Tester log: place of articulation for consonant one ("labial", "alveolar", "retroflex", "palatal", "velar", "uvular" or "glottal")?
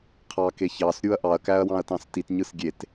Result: uvular